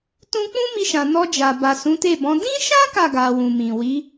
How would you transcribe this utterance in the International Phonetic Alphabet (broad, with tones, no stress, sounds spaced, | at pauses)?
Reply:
t ũ˦ k͡p ũ˦ m i˧ ʃ ã˨ n ɔ˧ d͡ʒ a˨ b a˨ s ũ˨˦ t e˦˨ b ɔ̃˨˦ d ĩ˦ ʃ ã˦ k a˦˨ ɡ a˨ w ũ˨ m ĩ˨ w i˨˦